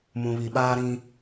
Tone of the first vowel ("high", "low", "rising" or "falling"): low